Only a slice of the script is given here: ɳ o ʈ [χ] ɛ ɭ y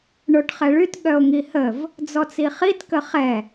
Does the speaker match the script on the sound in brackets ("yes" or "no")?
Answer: yes